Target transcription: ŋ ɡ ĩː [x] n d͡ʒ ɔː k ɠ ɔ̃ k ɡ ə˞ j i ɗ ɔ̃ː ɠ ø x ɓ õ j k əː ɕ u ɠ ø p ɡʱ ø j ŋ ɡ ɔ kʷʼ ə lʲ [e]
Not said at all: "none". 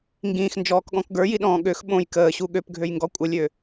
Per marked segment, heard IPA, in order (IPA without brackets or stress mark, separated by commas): x, ø